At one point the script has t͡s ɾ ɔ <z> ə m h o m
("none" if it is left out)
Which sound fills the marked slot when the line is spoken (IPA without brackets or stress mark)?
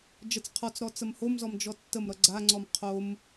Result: t͡s